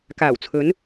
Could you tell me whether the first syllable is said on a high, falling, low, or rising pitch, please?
low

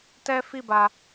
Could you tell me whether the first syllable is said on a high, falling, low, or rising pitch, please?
high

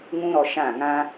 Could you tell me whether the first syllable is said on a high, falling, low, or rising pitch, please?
high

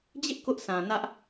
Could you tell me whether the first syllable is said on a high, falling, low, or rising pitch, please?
high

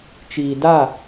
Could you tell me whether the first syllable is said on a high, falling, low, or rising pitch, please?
low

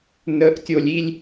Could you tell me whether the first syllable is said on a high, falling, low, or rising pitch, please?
low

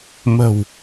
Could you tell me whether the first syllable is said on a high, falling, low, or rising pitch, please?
low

